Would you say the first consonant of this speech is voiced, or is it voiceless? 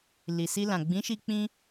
voiced